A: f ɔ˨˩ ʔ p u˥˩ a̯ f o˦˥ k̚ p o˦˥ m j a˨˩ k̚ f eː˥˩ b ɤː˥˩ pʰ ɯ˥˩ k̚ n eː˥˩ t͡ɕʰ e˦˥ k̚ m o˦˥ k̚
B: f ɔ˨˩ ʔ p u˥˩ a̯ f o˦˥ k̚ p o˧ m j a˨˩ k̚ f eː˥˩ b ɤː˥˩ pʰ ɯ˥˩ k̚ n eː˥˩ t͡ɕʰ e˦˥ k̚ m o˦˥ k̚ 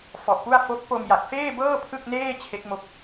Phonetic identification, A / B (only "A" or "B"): B